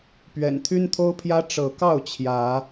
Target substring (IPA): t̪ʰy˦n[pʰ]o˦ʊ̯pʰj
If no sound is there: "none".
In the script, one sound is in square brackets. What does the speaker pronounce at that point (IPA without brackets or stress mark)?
t̪ʰ